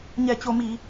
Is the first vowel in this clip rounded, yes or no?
no